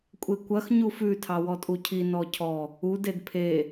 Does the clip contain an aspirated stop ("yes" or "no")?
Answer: yes